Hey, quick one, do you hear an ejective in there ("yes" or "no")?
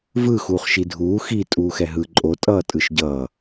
yes